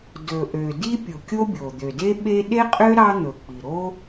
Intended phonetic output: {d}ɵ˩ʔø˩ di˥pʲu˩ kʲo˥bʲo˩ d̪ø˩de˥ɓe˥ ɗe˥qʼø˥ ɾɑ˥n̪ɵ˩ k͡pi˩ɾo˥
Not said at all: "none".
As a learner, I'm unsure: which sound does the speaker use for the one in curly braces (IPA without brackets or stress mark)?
d